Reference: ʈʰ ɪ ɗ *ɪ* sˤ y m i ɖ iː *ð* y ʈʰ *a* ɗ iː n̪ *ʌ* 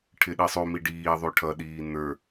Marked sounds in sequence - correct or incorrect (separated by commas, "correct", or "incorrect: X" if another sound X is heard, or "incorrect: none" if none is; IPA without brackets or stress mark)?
incorrect: i, incorrect: ðˤ, incorrect: ʌ, incorrect: ə˞